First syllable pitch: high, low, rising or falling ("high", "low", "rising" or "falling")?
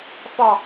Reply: low